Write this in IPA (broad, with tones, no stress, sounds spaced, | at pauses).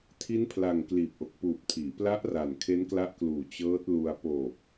tʰ i˦˥ n pʰ l a˨˩ ŋ k l iː˨˩ p̚ ʔ o˨˩ k̚ p uː˨˩ p̚ tʰ iː˩˦ p l a˦˥ ʔ r a˨˩ n kʰ e˦˥ n k l a˦˥ ʔ k l uː˨˩ t͡ɕ ɤː˦˥ t̚ l u˧ a̯ p oː˨˩ k̚